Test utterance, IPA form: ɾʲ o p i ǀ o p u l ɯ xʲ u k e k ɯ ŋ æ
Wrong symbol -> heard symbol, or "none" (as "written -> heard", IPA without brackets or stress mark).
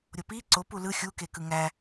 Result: none